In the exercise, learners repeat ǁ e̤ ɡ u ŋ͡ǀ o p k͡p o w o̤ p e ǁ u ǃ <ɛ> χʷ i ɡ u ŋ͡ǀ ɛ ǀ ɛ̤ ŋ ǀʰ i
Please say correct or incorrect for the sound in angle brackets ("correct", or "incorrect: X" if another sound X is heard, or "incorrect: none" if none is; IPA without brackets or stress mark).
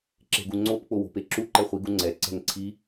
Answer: correct